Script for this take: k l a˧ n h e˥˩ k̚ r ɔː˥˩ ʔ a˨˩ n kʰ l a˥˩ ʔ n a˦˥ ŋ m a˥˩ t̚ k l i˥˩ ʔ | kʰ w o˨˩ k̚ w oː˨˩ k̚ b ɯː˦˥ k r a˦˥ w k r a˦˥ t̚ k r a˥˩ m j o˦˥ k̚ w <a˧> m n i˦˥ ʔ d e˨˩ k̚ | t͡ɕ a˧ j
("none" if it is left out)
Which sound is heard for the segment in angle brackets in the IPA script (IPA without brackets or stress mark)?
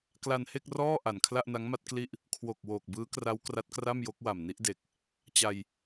a˨˩